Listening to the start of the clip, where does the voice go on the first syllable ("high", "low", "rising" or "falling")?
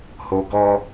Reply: low